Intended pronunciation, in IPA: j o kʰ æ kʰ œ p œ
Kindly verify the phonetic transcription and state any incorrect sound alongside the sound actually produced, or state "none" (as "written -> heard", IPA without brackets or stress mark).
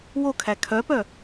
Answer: j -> w